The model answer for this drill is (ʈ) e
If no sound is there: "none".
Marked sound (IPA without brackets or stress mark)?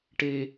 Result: ʈ